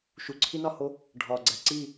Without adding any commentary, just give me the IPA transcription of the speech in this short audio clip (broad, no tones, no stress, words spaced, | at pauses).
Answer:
ʃuǀʰinɒho | ɖʱɒɡ͡ǀæ ǀi